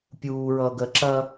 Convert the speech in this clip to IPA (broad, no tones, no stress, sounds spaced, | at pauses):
pʲ uː ɹ ʌː ɡ ɜ ǁ ɐ